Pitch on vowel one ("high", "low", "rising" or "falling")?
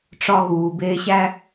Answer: high